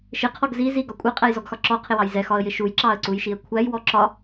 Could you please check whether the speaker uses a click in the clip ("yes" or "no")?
yes